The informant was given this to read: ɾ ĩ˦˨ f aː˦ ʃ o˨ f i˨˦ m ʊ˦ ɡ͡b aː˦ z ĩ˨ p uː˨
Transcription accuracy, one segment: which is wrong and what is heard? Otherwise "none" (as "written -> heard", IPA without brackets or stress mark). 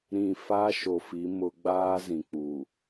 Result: p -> k͡p